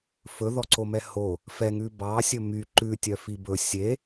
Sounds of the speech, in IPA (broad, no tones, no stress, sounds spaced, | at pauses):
f ɵ ð ɔ ǀ o m ɛ h o | f ɛ ŋ ʉ b ɑ sʲ ɵ m y ǃ ʉ tʲ œ f i b ɵ sʲ e